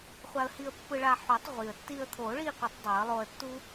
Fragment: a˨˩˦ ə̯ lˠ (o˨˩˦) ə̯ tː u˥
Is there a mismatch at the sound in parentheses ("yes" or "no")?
yes